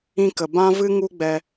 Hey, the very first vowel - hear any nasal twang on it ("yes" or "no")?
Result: yes